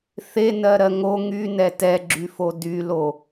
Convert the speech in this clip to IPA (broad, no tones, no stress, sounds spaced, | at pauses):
θ e n ɜ ɾ ɜ ŋ o ŋ y n ɛ t ɛ ɡ͡ǁ y f o d y l o